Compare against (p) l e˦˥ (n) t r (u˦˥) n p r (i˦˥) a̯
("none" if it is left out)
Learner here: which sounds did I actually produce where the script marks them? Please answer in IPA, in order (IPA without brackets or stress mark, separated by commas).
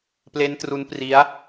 p, n, u˦˥, i˦˥